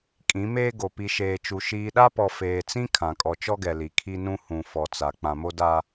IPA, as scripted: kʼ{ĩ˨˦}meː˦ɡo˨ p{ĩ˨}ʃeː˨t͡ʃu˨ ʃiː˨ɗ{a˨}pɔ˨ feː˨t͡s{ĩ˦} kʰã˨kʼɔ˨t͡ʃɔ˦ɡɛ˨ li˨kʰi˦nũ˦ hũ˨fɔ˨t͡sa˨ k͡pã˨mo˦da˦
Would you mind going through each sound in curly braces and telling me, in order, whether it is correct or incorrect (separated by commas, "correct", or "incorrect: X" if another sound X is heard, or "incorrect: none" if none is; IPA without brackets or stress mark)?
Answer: correct, incorrect: i˨, incorrect: a˦, correct